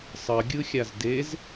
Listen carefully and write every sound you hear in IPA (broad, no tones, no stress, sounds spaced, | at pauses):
sˤ ʌ ɡʲ ɯ xʲ a z d e z